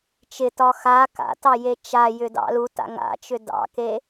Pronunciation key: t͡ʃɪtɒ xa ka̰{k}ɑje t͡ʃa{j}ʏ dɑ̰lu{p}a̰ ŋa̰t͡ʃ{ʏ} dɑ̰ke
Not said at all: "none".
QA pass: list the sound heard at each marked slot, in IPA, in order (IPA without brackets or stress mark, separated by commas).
t, j, t, ʏ